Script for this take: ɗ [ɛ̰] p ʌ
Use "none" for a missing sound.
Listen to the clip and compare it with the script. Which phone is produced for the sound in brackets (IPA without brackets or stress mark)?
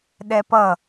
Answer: ɛ